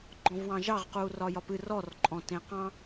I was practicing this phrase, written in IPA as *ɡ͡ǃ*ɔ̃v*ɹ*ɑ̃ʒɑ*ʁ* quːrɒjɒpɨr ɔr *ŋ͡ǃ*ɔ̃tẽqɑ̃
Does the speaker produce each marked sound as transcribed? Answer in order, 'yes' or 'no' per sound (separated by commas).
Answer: yes, no, yes, no